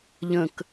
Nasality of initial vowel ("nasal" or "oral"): nasal